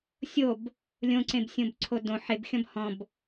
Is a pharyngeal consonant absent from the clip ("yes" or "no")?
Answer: no